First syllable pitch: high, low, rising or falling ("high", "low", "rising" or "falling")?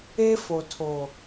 high